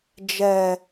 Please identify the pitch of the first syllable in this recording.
low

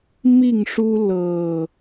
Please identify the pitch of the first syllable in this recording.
falling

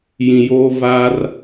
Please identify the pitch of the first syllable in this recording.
low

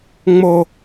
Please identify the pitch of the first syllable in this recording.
low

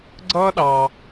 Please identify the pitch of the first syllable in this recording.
high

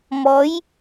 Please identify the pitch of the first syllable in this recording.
rising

